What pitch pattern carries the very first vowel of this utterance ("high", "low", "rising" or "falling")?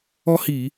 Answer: high